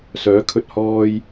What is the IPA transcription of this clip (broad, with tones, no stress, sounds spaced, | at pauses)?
s œː˨˥ kʰ ɵ˧ t̚ h ɔː˧ j